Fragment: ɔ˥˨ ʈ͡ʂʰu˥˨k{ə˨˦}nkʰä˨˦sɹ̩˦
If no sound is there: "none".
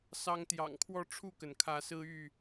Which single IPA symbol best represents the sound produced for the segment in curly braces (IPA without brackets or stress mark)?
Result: ə˩